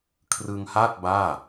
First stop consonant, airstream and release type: aspirated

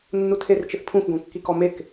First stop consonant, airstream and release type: aspirated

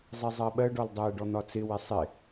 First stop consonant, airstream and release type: implosive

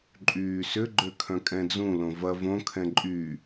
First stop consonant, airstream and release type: click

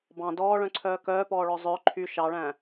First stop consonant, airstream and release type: plain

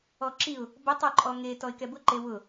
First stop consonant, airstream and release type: click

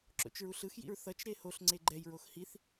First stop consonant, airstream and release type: click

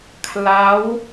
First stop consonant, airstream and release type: aspirated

